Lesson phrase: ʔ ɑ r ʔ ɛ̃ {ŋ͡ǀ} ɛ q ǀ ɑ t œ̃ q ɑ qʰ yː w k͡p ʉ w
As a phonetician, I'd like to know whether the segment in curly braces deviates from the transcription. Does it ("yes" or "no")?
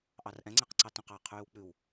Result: no